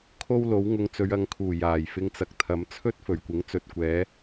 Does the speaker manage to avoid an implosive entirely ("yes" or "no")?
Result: yes